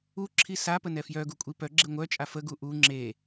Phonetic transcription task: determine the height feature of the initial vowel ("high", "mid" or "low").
high